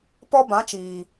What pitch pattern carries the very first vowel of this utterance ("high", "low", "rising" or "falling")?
high